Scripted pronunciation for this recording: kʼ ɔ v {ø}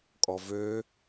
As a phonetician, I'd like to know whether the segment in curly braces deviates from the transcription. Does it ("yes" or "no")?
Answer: no